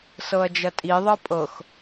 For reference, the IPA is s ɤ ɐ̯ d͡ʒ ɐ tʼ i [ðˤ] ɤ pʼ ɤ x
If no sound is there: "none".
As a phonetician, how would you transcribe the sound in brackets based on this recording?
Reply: ðˤ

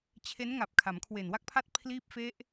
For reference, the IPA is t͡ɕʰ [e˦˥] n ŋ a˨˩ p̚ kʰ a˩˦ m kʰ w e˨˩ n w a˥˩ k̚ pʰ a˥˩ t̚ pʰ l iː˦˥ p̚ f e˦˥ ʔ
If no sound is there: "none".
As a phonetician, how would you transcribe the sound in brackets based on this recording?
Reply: e˦˥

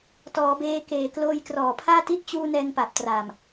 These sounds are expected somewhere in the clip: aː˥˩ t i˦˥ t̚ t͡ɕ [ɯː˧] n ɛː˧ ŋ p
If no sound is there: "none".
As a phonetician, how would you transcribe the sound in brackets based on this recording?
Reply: uː˧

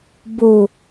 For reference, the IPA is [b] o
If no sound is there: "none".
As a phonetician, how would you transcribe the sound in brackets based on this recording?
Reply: b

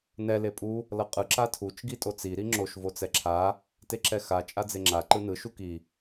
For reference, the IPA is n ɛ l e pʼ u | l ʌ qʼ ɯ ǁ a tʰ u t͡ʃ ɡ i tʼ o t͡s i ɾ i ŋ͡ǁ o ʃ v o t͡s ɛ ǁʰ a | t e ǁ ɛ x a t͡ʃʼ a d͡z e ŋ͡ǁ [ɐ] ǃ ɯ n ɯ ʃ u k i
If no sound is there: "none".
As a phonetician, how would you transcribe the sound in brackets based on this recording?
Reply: a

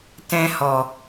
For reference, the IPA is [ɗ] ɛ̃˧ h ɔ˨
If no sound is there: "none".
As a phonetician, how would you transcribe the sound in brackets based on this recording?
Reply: t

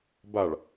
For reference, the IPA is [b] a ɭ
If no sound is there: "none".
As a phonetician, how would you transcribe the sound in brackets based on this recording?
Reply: b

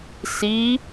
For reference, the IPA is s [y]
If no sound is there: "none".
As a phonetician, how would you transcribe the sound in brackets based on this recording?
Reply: i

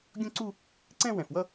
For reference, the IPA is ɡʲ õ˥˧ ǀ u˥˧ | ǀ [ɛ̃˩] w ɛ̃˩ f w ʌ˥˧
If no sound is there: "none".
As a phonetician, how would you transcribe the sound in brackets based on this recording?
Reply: ɛ̃˥˧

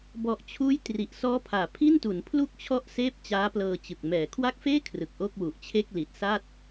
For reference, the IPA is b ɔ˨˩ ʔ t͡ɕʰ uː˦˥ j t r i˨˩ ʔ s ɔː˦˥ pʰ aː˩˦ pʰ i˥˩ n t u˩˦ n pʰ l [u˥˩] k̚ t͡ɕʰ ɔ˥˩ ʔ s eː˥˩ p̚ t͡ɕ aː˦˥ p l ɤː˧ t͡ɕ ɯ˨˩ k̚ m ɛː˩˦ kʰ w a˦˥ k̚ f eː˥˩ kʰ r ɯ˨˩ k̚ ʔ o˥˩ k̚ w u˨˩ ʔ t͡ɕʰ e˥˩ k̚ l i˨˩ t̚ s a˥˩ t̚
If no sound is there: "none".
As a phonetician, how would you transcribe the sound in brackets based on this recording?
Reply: u˥˩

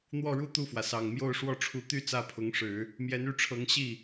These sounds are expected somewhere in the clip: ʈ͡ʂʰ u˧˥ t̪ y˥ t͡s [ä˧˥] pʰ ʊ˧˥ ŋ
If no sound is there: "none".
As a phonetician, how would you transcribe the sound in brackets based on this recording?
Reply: ä˥˩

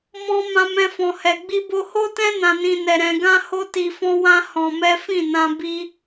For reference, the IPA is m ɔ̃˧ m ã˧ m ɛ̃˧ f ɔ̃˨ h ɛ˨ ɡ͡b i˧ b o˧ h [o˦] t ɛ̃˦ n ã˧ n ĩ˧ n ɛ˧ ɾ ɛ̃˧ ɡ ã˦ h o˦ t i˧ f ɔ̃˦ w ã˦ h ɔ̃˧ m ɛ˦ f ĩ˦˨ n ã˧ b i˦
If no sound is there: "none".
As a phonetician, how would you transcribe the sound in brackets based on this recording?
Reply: o˦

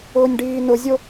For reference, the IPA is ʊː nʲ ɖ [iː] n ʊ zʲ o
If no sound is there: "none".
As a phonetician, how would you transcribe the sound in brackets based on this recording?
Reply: iː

